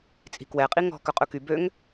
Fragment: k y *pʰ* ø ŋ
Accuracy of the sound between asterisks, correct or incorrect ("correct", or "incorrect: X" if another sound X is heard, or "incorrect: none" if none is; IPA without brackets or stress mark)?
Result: incorrect: b